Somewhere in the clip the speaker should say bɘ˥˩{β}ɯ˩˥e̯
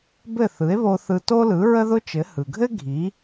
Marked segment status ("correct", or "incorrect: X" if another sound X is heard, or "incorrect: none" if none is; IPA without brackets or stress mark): incorrect: θ